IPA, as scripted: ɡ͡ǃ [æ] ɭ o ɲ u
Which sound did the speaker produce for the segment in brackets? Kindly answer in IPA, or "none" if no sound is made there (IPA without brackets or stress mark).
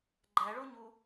æ